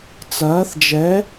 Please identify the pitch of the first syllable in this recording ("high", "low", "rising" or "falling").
rising